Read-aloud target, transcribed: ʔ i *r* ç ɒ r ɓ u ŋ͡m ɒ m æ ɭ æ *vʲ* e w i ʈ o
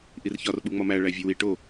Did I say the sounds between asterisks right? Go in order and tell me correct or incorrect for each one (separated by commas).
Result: correct, correct